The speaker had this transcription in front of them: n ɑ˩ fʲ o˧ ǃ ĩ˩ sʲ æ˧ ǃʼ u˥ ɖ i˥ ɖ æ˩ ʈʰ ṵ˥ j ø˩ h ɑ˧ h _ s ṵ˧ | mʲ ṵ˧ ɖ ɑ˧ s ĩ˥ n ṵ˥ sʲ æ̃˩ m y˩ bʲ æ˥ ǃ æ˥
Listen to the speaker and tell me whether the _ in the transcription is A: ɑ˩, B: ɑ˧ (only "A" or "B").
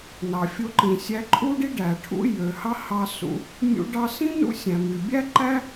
B